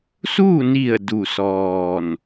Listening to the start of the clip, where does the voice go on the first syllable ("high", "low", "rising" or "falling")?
falling